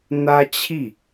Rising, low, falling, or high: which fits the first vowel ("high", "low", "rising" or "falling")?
high